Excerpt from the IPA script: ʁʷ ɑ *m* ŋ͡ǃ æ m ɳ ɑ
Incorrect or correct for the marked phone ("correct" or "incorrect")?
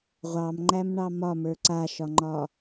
correct